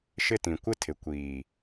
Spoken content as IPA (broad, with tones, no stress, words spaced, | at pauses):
ʃɪ˦tĩ˨ kʷɪ˦tʰɪ˨kʷiː˨